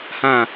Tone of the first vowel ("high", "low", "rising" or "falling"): falling